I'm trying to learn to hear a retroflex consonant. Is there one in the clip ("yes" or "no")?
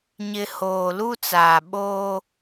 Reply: no